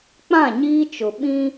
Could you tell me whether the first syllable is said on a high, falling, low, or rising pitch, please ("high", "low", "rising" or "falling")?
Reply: falling